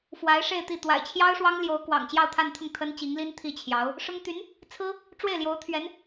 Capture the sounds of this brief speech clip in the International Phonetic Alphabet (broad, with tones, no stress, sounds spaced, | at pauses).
f w a˧˥ ɪ̯ ʂ e˥˧ ɪ̯ t̪ i˥˩ t̪ w a̰˨˩ ɪ̯ t͡ɕʰ j ɑ˥ ʊ̯ ʂ w ɑ˥ ŋ l j o˧˥ ʊ̯ k w ɑ̰˨˩ ŋ t͡ɕ j ɑ˥˧ ʊ̯ t̪ʰ a˥˧ n t̪ʰ ʊ˥˩ ŋ t̪ʰ ə˥ n t͡ɕ i˧˥ ŋ l i˥ n t̪ʰ i˥˩ t͡ɕʰ j ɑ˧˥ ʊ̯ | ʂ ʊ˥ ŋ t̪ y˧˥ n | t͡sʰ ɹ̩˥ | ʈ͡ʂ w e˥˩ ɪ̯ l j o˧˥ ʊ̯ t̪ʰ ɥ ɛ˧˥ n